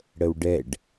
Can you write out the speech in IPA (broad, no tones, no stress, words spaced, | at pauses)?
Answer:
ɽəwɖɛɖ